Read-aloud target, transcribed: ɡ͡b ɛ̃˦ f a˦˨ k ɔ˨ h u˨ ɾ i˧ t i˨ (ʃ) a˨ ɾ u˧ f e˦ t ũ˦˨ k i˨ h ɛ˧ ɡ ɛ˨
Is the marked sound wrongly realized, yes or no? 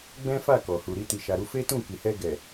no